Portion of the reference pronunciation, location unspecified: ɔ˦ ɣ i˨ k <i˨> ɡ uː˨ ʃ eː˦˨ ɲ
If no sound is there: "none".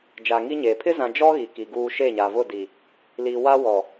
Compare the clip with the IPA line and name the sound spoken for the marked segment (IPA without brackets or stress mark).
i˨